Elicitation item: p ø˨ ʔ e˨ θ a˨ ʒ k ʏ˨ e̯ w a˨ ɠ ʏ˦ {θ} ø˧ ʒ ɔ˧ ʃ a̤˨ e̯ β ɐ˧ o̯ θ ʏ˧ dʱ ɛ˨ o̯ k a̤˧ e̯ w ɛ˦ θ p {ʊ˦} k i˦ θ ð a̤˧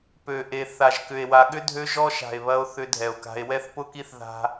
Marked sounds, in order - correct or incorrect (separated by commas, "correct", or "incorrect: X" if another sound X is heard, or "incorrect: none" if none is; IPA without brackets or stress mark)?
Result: incorrect: dʱ, correct